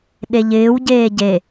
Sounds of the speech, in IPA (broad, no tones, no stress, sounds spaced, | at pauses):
ɗ e ʎ ɪː w ɟ eː ɟ e